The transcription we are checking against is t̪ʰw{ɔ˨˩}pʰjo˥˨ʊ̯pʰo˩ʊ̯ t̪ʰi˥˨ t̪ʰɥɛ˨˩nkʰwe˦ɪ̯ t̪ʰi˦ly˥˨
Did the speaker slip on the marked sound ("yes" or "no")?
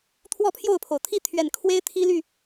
yes